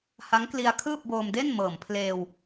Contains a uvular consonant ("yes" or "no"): no